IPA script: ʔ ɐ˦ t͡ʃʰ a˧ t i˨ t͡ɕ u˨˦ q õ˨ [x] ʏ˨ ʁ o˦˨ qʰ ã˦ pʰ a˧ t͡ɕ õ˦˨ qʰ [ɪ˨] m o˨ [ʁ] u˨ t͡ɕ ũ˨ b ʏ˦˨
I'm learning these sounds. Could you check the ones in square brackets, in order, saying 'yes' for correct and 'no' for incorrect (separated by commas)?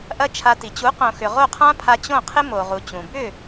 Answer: yes, no, yes